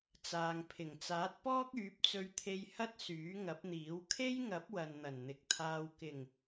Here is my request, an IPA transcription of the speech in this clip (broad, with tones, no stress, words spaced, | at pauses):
t͡saː˨ŋpʰɪ˨˩ŋ t͡saː˨˥t̚pɔː˥k̚ yː˨˥p̚t͡sɵ˧ɥt̪ʰe˧jhɐ˥t̚ syː˨˥ŋɐ˨˥p̚n̪iː˨˥w kʰe˥jŋɐ˨˥p̚ wɐ˨nn̪ɐ˨˩nn̪ɪ˨k̚t̪ʰaː˧w kɪ˨˩ŋ